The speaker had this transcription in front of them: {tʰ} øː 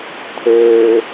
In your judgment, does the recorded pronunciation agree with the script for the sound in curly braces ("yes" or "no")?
yes